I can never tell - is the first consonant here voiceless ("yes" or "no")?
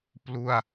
yes